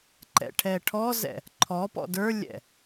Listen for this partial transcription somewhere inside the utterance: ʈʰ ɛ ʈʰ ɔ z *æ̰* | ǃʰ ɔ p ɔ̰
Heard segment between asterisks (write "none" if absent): ɛ̰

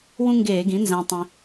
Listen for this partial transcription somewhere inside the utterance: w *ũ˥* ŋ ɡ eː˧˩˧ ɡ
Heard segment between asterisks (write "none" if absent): ũ˥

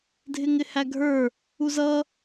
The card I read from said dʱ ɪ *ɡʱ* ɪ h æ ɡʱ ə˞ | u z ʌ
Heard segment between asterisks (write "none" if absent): ŋ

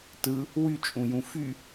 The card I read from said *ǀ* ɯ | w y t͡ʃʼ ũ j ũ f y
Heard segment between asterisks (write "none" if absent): t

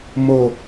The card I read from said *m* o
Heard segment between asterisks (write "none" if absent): m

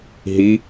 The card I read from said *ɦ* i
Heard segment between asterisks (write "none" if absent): ɦ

